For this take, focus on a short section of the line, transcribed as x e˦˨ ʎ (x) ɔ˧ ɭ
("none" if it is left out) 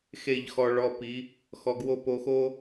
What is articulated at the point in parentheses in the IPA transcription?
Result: x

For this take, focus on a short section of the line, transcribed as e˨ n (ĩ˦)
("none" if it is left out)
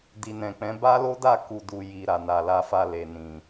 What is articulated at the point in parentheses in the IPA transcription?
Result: ĩ˨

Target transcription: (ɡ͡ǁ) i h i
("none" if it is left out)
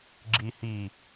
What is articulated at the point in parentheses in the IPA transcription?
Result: ɡ͡ǁ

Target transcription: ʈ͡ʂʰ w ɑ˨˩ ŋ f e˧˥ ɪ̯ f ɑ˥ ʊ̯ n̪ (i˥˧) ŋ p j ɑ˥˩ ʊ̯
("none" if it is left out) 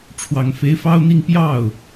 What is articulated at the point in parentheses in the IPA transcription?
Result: i˥˧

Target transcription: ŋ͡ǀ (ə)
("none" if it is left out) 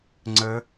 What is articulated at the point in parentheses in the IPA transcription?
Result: ə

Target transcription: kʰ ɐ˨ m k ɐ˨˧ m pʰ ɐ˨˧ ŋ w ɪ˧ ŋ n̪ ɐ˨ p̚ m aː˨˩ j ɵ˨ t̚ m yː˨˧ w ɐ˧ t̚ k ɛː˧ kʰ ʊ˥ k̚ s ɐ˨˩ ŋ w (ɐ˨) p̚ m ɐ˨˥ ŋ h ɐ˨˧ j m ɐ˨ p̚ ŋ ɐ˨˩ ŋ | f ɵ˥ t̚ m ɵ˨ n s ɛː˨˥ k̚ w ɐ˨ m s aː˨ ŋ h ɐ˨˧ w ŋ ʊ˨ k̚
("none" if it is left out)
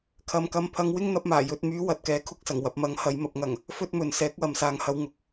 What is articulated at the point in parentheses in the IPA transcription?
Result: ɐ˨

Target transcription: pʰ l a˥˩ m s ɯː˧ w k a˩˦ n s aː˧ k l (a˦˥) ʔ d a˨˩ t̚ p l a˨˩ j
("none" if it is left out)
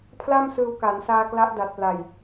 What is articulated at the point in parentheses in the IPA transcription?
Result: a˦˥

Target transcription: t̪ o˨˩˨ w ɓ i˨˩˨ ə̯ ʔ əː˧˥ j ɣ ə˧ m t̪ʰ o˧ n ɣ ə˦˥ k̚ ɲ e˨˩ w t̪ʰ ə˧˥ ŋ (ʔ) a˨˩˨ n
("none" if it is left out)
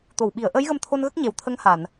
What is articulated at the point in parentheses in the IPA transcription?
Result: h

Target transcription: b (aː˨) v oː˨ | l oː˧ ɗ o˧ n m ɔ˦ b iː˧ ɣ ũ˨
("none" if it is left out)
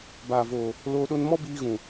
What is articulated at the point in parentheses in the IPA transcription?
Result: aː˨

